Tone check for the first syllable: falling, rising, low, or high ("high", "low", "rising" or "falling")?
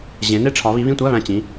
rising